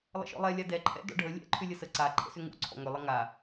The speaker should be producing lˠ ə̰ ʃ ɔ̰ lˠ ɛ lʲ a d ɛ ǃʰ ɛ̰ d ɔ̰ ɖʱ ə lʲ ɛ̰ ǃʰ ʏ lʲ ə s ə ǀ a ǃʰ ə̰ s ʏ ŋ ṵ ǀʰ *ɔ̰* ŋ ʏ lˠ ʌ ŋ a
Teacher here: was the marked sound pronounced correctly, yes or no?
yes